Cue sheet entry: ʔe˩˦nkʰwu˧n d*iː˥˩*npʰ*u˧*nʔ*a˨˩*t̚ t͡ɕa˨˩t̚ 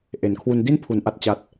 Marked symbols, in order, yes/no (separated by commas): no, no, yes